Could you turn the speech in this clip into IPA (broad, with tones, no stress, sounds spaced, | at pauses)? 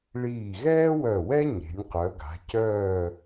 ɭ iː˧˩ ɣ ɛː˥ w œ˧˩ w ɛ˥ ɲ e̤˩˧ nʲ q œ˩˧ ɡ a̤˩˧ c œː˥˧